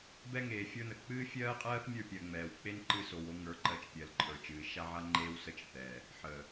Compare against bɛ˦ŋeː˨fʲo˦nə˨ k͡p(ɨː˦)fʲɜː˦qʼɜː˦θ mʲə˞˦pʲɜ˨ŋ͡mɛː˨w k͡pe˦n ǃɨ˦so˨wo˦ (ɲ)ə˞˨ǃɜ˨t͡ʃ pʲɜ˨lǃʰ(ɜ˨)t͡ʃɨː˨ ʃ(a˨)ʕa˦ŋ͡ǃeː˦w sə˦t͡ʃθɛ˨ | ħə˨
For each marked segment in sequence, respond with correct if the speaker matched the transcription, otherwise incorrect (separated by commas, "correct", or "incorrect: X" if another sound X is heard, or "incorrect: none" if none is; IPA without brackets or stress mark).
correct, incorrect: ŋ, incorrect: ə˞˨, incorrect: a˦